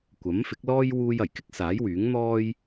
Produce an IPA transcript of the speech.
kʷ ɐ˨˥ m f ɪ˨˥ k̚ l ɔː˥ j w uː˧ j ɐ˨˩ j k ɪ˥ k̚ s aː˨˥ j w yː˨˥ ŋ n̪ ɔː˥ j

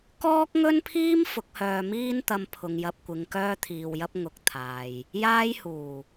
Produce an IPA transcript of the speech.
k ɔː˥ k̚ ŋ ɵ˥ n pʰ iː˥ m f ʊ˨˥ k̚ h œː˧ m iː˥ n t̪ ɐ˧ m pʰ ʊ˨ ŋ j ɐ˧ p̚ kʷ ɪ˨˧ ŋ k œː˥ t̪ʰ iː˧ w j ɐ˥ p̚ ŋ ʊ˨ k̚ t̪ʰ aː˨ j | j aː˥ j h uː˨˩

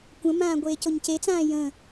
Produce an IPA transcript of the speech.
kʷ ə̃ m ãː ɡʷ eː c o ɲ c e t͡s ãː j ə̃

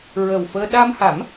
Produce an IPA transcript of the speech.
ɹ ə˨˩ w f əː˧ ɗ a˧ m h a˨˩˦ m

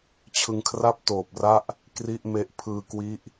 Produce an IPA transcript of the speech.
t͡ɕʰ ɯ˧ ŋ kʰ r a˥˩ p̚ t oː˨˩ p̚ r a˥˩ ʔ | k r i˥˩ ʔ m e˦˥ ʔ pʰ ɯː˧ k w i˦˥ ʔ

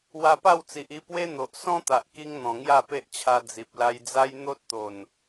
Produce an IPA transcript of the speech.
w a˧ p a˥˧ w t͡s i˨ ʔ i˧ p w e˦ n̪ o˨ ʔ s ɔ̃˦ t̪ a˨ ʔ k i˧ ŋ n̪ ɔ̃˨˩ ŋ j a˥˧ p e˦ ʔ t͡ɕʰ a˧ d͡z i˨ p̚ l a˧ j d͡z a˦ j n̪ o˦ t̚ t̪ o˨˩ n

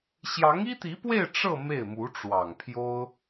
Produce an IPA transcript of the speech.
ɕ j ɑ˧˥ ŋ i˥ t̪ i˧˥ p w e˥˧ ɪ̯ ʈ͡ʂ ɤ˥˧ m e˥˩ ɪ̯ m u˧˥ ʈ͡ʂ w ɑ˨˩ ŋ pʰ j o˥ ʊ̯

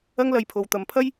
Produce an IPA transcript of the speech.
ɐ˥ ŋ l ɐ˧ j pʰ o˨˧ w t̪ ɐ˨ m pʰ ɐ˥ j

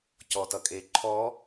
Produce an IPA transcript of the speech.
c ɔ t ʌ kʼ e ǃʰ ɔ

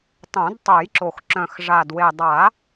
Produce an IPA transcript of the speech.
tˤ õ˨˩˦ d tˤ œ˨˩˦ j ǁ o˨˩ x ǁ œ̃˨˩ x ʐ a˨˩ d w e˨˩ dˤ a˨˩˦

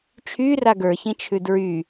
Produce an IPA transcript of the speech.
t͡ʃʰ y r a ɡ ə˞ ç ĩ t͡ʃʰ ʉ d ɹ y

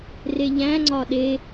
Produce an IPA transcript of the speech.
r e ʎ æ̃ ŋ͡ǀ ɒ ɗ e

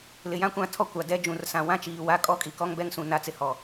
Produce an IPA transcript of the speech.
l ɪ˨ j ã˦ kʷ ã˦˨ tʰ ɔ˦ kʷ a˨ d ɛ˦ d͡ʒ ũ˨ r s ã˨ w ã˦ t͡ʃ iː˨ w a˦ kʼ ɔ˦ kʼ i˨ k ɔ˦ ŋ b ɛ˦ ŋ s ũ˨ n a˦˨ t͡s ɪ˦ h ɔ˨

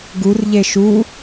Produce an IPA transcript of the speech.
ɡ u r ʎ e ʃ u

